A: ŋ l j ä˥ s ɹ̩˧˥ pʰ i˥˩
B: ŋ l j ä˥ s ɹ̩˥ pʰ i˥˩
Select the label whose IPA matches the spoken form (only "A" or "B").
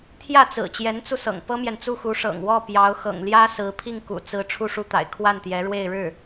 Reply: A